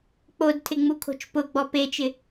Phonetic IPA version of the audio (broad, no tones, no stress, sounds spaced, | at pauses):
k͡p o d tʰ ɪ ŋ͡m u kʰ o̤ t͡ʃ p ʊ ɡ͡b ɔ p e t͡ʃ ɪ